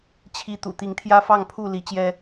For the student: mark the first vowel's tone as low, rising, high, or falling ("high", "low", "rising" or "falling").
rising